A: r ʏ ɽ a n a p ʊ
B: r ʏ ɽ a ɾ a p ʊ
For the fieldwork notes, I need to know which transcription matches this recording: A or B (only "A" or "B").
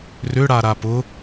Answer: B